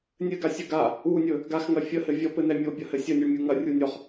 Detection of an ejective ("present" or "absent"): absent